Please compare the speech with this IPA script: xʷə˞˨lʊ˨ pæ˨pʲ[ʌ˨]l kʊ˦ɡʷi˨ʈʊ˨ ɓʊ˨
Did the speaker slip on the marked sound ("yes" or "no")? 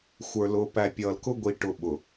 no